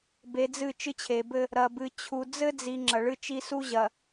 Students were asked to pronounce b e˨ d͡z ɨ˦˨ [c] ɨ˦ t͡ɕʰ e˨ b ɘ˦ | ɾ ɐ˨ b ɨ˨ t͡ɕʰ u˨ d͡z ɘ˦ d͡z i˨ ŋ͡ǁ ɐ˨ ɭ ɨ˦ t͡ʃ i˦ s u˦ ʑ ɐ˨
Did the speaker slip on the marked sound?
yes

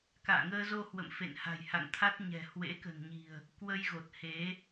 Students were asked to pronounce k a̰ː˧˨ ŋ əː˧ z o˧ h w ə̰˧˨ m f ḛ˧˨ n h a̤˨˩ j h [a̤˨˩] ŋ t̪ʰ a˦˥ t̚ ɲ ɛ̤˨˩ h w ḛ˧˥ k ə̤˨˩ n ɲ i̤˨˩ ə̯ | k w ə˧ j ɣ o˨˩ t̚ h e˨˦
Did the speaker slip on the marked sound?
yes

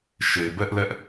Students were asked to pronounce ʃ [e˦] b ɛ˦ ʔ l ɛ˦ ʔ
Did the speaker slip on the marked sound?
yes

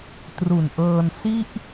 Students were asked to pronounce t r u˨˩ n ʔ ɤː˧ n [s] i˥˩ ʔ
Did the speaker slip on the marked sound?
no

